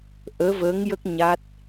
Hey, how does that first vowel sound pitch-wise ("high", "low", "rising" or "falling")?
rising